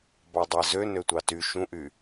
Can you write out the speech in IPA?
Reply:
bɑdˤæzø nøtʷɑty ʃũʔy

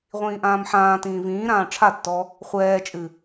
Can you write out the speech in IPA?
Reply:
ʁʷĩːʔãːmħãːtĩː vĩːɾãː ʈ͡ʂʰatːɔ | χʷɛːt͡ʃʼɨ

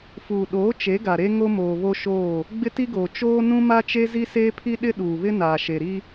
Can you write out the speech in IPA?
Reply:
fuː˨ɗoː˨˦ t͡ʃe˨˦ɡa˨ɾe˦ ŋo˦moː˨βo˦ʃoː˦˨ | ɡ͡bɪ˦ti˦ɡoː˨ t͡ʃoː˦ nũ˦ma˦t͡ʃe˦ zi˦seː˦pʰi˦ ɗɪ˦ ɗuː˨βɪ˦naː˨ ʃe˨ɾi˦

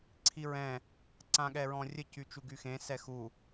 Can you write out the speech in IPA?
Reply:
ǀʰiɹɛ̃ | ǀãɠɛɹɔ̃rʲə cyt͡ʃuɡyxẽ sɛxu

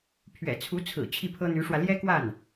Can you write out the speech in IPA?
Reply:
pʰɥɛ̰˨˩t͡sʰu˧˥t͡sʰɹ̩˨˩ t͡ɕʰi˥˩pʰɤ˥n̪y˧˥ʂwä˧ ljɛ˥kwa˥˩n

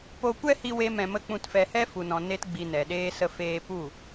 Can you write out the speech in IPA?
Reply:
po˧kʷɛ˦hi˧ we˦mɛ̃˧mə˦ k͡pũ˧tfɛ˧ hɛ˦fu˨nɔ̃˨ ne˦tɡ͡bi˧nɛ˨ɗeː˦ sə˧feː˧ pu˦˨

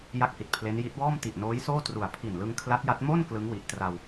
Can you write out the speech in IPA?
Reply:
ja˥˩k̚hi˨˩t̚pʰle˦˥nji˦˥t̚ wɔː˥˩mti˨˩ʔnoː˦˥jsoː˥˩ tru˨˩a̯ pʰi˨˩n lɯ˧ŋkʰla˦˥t̚ja˦˥t̚ mo˥˩n klɯ˦˥ŋwi˨˩ʔtra˧w

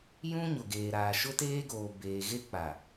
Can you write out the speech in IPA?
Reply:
jũ˦ ɲʊ˨ɡeː˨ɾaː˨ ʃʊ˦teː˦ɡoː˨ beː˨ɣe˦ k͡pa˨

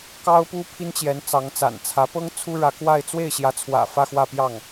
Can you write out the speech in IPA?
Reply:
kɑ˥ʊ̯pu˥ pʰi˥nt͡ɕjɛ˧˥n t͡sɑ˧˥ŋt͡sa̰˨˩nt͡sʰä˧˥pɤ˥ŋ t͡sʰu˥ɻä˧˥ kwa˥˧ɪ̯ t͡swe˥˩ɪ̯ɕjä˧˥t͡sʰwä̰˨˩ fä˥˧ xwä˥˧pjɑ˥˩ŋ

